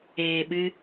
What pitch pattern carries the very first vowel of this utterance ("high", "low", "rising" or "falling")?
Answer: low